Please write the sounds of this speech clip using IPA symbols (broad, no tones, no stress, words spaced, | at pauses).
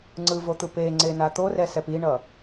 ŋ͡ǀɯvot̪ɯ peŋ͡ǀena t̪orɛsɛp iɳʌ